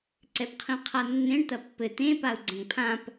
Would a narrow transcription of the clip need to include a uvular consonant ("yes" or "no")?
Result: yes